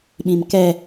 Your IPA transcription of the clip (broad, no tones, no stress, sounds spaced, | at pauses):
ɓ ĩ m k ɛ